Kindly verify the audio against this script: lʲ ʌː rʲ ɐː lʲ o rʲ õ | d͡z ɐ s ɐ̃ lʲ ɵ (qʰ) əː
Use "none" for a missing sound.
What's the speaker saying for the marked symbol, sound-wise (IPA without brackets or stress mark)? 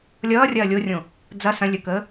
k